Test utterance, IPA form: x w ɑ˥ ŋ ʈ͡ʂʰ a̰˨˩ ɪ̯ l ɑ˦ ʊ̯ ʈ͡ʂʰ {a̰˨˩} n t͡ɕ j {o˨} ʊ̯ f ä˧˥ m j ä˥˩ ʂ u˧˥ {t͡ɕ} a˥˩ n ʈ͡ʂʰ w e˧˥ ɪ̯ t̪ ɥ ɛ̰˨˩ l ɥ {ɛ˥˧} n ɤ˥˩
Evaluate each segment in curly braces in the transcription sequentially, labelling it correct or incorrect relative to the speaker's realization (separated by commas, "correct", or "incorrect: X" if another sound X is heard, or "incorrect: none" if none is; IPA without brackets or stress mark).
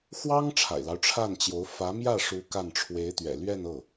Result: incorrect: a˥˩, incorrect: o˧˥, incorrect: k, correct